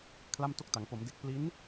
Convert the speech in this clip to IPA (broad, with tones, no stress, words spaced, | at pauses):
kʰla˥˩mto˥˩k̚ta˩˦ŋ po˩˦mde˨˩k̚ pli˦˥n